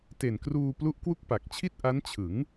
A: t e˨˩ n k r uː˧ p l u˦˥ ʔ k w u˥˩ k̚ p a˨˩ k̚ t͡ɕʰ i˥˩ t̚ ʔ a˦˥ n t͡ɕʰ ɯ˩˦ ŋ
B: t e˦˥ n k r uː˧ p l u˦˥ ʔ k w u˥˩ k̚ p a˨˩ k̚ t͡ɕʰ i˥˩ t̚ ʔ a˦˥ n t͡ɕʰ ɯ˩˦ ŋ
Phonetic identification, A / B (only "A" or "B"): A